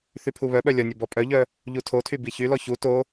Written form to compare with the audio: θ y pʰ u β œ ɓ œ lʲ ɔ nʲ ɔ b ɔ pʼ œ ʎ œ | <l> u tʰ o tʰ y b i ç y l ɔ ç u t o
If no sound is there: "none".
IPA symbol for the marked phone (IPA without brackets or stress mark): ʎ